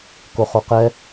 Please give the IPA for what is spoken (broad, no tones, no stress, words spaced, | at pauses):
koχoqɛ